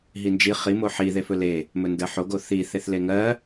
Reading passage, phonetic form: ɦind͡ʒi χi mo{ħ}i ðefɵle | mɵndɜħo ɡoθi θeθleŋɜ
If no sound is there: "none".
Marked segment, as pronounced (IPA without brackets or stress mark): ħ